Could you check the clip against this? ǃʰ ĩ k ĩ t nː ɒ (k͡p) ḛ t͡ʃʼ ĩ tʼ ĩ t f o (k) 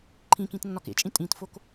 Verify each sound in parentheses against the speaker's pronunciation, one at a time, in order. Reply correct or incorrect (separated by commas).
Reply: incorrect, correct